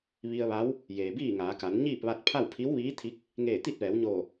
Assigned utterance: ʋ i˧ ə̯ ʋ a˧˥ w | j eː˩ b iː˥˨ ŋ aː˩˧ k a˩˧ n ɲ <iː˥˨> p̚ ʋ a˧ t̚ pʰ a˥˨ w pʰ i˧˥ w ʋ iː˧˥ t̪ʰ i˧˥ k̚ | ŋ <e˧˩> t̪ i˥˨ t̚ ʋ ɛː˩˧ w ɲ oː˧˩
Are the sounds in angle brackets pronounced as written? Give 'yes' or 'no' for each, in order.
yes, no

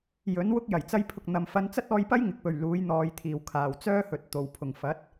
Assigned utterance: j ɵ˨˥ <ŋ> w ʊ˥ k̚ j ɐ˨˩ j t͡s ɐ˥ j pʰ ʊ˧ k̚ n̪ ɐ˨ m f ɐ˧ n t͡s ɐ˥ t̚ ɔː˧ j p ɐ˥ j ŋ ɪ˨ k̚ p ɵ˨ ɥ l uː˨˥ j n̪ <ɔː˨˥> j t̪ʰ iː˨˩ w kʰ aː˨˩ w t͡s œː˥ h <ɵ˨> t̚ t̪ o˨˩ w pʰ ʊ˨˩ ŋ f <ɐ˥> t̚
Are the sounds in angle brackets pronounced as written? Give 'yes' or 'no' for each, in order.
no, no, yes, no

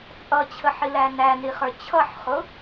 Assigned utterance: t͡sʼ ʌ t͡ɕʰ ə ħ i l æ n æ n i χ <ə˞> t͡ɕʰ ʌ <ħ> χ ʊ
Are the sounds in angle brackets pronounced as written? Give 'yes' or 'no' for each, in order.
yes, yes

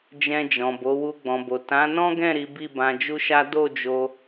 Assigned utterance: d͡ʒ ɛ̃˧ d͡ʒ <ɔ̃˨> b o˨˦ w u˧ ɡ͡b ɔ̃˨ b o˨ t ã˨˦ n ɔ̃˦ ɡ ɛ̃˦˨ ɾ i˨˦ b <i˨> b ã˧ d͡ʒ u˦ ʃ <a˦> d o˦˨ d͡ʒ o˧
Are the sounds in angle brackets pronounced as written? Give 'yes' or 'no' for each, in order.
yes, no, yes

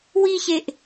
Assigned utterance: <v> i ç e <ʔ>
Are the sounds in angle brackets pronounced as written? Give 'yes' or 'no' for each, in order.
no, yes

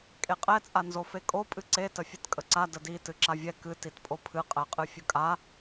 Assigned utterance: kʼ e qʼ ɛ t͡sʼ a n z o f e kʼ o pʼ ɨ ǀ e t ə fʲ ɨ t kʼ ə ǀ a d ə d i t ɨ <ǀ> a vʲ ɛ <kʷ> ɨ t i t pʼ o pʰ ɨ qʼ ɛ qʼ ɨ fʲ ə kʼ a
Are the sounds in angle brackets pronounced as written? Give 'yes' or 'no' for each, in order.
no, no

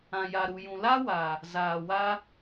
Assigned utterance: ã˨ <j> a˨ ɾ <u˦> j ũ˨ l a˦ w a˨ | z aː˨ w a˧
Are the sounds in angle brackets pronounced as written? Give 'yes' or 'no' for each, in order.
yes, no

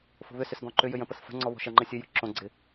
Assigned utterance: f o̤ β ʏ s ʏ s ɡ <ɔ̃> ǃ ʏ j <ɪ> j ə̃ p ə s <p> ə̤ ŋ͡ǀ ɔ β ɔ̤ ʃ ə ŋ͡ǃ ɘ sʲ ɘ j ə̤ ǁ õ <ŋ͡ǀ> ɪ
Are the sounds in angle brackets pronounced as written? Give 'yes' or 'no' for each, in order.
yes, no, no, no

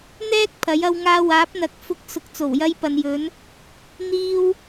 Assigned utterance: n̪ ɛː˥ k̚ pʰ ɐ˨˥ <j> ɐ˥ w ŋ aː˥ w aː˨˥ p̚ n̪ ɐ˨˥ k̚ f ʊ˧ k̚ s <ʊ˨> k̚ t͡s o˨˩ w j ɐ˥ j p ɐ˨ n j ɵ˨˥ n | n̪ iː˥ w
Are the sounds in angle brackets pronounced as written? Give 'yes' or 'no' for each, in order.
yes, yes

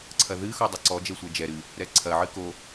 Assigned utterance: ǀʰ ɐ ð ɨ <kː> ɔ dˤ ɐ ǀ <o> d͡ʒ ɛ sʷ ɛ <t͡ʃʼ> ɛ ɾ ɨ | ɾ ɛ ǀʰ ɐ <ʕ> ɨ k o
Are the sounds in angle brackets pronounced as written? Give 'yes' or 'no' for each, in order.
no, no, no, yes

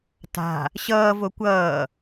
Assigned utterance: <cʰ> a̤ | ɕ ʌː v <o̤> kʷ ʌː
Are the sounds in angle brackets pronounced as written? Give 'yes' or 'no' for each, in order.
no, no

